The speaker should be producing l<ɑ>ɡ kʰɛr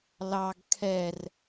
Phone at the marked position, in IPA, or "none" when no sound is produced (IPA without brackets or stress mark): ɑ